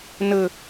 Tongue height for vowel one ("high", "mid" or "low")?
mid